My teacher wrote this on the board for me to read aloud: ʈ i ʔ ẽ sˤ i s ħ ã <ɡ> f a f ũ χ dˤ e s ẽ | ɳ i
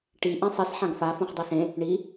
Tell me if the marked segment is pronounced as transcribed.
yes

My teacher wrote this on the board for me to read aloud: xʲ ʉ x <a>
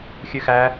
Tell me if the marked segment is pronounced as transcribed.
no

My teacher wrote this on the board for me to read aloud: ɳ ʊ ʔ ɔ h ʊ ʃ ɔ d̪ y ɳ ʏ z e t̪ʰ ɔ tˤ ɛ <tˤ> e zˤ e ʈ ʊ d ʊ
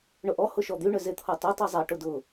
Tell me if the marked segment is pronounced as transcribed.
yes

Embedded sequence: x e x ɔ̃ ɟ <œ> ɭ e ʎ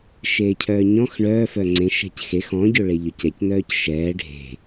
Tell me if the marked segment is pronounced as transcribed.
no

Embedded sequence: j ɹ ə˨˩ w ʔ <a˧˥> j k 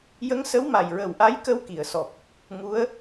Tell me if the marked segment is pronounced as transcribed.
yes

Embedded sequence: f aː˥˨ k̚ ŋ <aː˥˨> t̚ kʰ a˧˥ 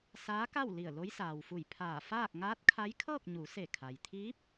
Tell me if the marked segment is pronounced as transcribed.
no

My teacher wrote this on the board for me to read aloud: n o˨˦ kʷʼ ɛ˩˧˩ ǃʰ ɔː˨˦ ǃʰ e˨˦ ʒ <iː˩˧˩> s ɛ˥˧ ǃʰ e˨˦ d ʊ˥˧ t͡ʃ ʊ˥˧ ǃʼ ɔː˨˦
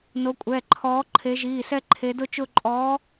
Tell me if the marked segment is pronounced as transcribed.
yes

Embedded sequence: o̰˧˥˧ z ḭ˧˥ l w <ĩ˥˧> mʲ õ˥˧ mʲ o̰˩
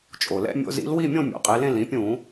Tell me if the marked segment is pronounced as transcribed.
no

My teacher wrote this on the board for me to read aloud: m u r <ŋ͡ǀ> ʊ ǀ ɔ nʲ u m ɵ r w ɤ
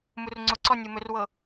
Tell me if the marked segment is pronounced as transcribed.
yes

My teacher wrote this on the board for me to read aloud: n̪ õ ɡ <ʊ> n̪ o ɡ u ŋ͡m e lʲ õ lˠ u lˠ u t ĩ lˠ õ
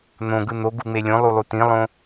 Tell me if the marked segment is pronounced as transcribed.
no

